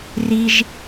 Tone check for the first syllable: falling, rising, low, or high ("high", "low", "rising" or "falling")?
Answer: high